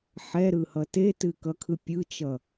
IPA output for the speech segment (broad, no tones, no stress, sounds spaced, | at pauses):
ħ ɛ ɾ ɯ h ʌ t e t ɨ k ʌ kʰ ɯ pʲ ɯ t͡ʃ ʌ